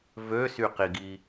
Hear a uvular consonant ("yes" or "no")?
yes